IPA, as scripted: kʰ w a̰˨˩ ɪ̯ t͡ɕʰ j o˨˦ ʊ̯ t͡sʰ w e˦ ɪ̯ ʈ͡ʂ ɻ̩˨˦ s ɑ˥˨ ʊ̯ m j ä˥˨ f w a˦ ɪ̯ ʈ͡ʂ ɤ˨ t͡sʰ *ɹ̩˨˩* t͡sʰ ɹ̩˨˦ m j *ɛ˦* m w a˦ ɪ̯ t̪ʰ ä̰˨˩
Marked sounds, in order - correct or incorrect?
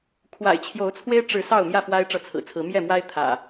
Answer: correct, incorrect: ɛ˥˨

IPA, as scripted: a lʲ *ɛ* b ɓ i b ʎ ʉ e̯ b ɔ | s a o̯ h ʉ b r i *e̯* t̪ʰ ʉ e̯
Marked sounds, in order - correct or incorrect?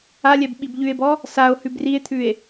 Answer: correct, correct

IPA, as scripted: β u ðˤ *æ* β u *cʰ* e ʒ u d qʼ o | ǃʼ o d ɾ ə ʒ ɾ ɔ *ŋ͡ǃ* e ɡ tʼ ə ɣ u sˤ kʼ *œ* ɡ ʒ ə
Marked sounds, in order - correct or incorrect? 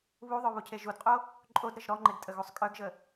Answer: incorrect: œ, correct, correct, correct

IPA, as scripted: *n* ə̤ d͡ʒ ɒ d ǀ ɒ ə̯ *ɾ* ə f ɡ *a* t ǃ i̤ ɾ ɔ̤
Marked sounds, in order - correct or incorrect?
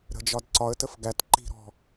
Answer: incorrect: ɾ, incorrect: t, incorrect: æ

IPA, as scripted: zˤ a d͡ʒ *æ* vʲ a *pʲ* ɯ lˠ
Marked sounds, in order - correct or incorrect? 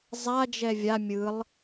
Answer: incorrect: ɛ, incorrect: mʲ

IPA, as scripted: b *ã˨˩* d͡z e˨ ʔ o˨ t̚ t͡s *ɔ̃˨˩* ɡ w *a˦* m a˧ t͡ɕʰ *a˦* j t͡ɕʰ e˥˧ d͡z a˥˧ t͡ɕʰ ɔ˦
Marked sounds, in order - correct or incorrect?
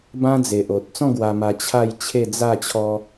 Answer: incorrect: ã˦, incorrect: ɔ̃˥˧, incorrect: a˧, incorrect: a˥˧

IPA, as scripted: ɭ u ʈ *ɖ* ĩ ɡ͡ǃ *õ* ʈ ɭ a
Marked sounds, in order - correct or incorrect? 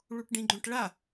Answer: correct, correct

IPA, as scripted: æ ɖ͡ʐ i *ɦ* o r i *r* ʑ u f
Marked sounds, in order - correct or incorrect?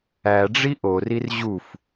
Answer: incorrect: ʔ, correct

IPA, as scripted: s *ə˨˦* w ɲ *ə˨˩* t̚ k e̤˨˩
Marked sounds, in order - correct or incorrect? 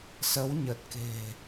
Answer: correct, correct

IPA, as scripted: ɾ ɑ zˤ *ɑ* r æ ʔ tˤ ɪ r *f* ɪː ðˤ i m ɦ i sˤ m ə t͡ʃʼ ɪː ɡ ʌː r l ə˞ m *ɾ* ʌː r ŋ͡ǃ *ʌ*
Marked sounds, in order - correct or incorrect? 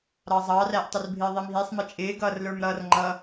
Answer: correct, incorrect: bʱ, correct, correct

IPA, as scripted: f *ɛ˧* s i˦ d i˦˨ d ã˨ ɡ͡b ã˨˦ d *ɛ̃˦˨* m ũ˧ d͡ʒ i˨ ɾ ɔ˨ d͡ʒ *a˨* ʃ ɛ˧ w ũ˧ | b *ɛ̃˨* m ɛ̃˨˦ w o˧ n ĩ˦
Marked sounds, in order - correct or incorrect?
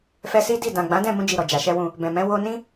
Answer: correct, correct, correct, correct

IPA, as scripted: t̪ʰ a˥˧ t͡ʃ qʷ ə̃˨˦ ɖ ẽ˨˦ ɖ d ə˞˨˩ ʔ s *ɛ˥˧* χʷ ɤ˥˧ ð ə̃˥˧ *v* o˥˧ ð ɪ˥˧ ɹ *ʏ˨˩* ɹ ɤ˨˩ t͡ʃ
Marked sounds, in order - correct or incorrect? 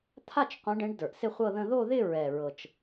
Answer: incorrect: ɪ˥˧, incorrect: ð, incorrect: ɛ˨˩

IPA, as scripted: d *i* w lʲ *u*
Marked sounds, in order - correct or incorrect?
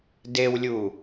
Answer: incorrect: e, correct

